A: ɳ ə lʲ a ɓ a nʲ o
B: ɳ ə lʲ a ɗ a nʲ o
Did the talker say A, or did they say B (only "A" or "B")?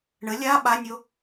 A